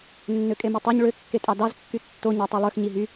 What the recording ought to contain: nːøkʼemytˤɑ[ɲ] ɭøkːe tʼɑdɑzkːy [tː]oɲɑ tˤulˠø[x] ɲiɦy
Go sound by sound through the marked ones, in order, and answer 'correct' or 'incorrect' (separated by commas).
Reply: correct, correct, correct